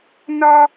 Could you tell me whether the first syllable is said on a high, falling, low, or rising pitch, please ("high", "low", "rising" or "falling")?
high